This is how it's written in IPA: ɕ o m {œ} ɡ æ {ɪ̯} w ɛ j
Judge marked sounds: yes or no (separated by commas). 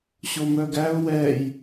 yes, no